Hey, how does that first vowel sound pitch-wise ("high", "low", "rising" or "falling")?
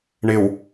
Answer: low